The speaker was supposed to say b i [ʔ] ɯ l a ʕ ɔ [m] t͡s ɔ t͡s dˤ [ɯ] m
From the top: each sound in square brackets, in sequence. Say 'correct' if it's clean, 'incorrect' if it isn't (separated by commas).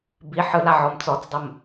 incorrect, correct, incorrect